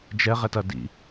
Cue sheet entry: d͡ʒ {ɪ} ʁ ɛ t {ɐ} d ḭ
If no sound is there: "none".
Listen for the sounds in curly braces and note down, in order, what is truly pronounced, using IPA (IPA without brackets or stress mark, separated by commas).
ɛ, ɐ